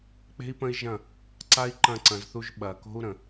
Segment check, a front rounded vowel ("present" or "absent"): absent